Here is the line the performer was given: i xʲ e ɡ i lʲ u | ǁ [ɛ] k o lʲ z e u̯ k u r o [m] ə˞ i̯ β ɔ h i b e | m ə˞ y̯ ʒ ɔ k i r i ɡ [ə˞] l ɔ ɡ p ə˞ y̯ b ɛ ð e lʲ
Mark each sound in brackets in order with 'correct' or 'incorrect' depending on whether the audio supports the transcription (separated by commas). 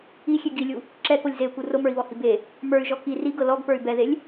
correct, correct, incorrect